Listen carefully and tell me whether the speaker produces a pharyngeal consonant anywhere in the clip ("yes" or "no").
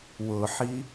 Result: yes